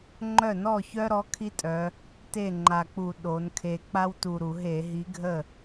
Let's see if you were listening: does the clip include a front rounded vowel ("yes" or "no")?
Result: yes